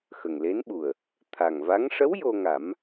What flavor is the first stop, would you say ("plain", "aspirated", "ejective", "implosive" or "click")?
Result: implosive